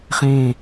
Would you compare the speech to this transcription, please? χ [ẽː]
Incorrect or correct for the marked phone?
incorrect: ẽ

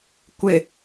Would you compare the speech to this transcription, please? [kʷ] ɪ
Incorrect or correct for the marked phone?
correct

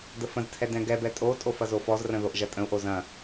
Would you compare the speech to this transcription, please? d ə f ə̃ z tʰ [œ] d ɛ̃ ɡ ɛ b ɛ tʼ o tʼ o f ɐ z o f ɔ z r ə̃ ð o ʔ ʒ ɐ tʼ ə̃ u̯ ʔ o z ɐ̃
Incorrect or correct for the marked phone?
incorrect: ɛ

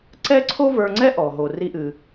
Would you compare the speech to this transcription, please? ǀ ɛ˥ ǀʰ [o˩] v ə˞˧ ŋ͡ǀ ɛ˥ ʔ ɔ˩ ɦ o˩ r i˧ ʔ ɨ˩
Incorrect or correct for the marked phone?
incorrect: o˥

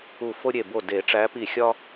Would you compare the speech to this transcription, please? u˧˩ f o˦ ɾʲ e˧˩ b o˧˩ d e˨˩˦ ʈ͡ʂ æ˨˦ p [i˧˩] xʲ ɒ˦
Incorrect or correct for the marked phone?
correct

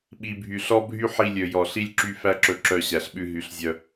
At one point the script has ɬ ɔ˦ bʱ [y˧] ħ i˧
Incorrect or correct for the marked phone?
incorrect: y˦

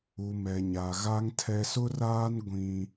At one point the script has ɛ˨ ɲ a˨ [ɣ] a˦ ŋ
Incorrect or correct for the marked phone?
correct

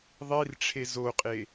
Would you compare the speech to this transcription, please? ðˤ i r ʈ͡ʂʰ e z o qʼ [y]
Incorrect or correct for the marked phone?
incorrect: e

